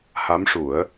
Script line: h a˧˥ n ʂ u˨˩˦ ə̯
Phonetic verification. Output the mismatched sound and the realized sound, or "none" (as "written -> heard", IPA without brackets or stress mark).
n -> m